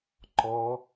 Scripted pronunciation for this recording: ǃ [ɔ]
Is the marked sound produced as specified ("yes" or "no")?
yes